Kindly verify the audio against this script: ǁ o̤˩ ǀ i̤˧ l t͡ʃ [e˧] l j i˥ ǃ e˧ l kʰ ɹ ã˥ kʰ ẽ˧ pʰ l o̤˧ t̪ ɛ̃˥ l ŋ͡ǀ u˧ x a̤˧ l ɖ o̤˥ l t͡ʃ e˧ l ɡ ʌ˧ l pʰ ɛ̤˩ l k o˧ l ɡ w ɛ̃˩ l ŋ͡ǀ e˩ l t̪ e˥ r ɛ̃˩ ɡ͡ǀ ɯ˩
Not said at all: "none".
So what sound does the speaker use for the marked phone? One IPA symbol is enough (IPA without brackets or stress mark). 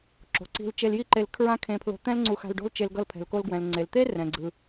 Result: e˧